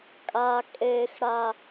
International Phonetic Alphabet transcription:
kʼa kʼeːx ɽa

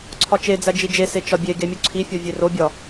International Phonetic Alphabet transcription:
ǀʰɒt͡ʃed͡zæ d͡ʒid͡ʒese t͡ʃɒbʲeɡe mʲuǀʰifʲɒ vʲerobʲɒ

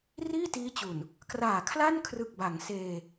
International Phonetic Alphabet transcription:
riː˥˩tiː˦˥t͡ɕu˨˩n | kraː˨˩kʰla˥˩nkʰrɯ˨˩k̚ba˩˦ŋ seː˧

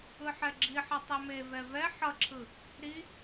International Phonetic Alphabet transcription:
ɯħɛɡ͡ǁiħʌ tˤɛmevɛ vɛ ħʌǁʰɯ | ɾi

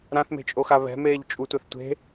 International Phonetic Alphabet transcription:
ɾãθme̤t͡ʃʼoxa βɛ̤meːʎ t͡ʃʼutʷaθ tʷe̤

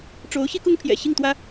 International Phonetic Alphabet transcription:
ʈ͡ʂo˧˥ʊ̯ ɕi˥kʊ˥ŋpʰjɛ̰˨˩ ɕi˥˩ŋt̪wä˥

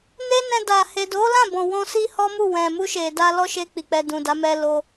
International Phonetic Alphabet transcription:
ne˦nɛ̃˧da˨ he˨do˨˦lã˦˨ bɔ̃˨ wɔ̃˧si˦hɔ˦mu˦˨ wɛ̃˨mu˧ʃe˨ da˧lɔ˦ʃe˧ k͡pi˨k͡pɛ˧dũ˨da˨˦ mɛ˦lo˦

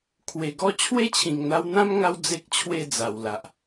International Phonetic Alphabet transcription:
kʰwe˨˩ɡɔ˥˧ t͡ɕʰwe˥˧t͡ɕʰĩ˨˩ŋn̪a˧wn̪ã˦m ŋa˦w d͡ze˦k̚t͡ɕʰwe˥˧d͡za˨˩wla˨ʔ

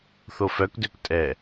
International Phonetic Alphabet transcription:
θofœkdøk tʼɛ

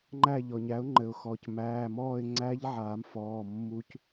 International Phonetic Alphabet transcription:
ŋ͡ǃæ˦˨ʎɔ˩ɲæ˩˥ʊ̯ ŋ͡ǃɘ˩ʊ̯xɔ˩c mæː˩˧˩mɔː˦˨ɪ̯ ŋ͡ǀæ˦˥ʎʕaː˨˩˦mfɔː˩˧˩ mːu˦˥c

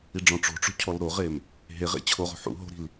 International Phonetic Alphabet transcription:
iɖ͡ʐɔ̃ʈ͡ʂo̤ʈ͡ʂo̤ cʰɔlɾoʁem | ɦeʁḛ t͡ɕʰoʁo̤ ħṵ ɦo̤ɾi̤l

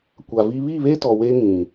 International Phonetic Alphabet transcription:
kʷa˨vi˦ βi˦˨βe˦tɔ˨ we˦ ŋĩ˨

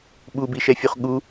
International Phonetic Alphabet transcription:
ɓubiʃɛfʲuχ ɠu

